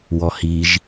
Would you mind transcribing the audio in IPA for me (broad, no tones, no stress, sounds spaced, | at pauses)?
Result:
w ɔ h i ʒ